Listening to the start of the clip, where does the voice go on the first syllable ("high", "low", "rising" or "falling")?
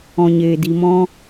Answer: low